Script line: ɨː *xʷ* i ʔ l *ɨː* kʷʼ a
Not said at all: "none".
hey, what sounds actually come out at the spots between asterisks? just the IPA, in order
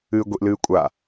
ɡʷ, ɨː

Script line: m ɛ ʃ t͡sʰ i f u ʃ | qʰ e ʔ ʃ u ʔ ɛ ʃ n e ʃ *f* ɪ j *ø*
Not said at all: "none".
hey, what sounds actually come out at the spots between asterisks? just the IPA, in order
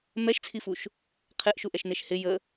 h, ə

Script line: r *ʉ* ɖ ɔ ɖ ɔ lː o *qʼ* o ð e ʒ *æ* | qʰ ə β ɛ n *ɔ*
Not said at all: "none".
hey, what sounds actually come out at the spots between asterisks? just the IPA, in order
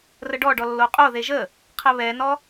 ə, qʼ, ə, ɔ

